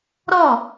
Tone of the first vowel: falling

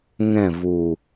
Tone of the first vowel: falling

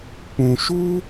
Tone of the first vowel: low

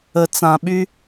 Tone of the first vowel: low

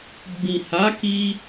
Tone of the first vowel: low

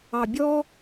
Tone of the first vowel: low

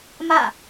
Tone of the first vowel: falling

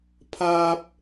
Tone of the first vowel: high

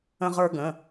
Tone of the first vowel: high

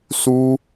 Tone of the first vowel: high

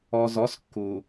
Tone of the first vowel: low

